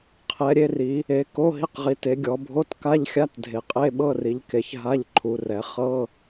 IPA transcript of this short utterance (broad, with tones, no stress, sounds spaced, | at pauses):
qʰ ɛ˩˧ ɾʲ e˩˧ r i˩˧ | e˩˧ k o˧˥˧ ɦ i˧˥˧ q ʁ i˩˧ t e˩˧ ɡʲ ɔ˩˧ bʱ o˧˥˧ t k a˧˥˧ ʎ xʲ a˧˥˧ t dʱ e˩˧ qʼ e˧˥˧ ɓ ɤ˧˥˧ r i˩˧ ʎ k e˩˧ ç ɦ a˧˥˧ ʎ ǃʰ u˩˧ r ɛ˩˧ χ ɤ˧˥˧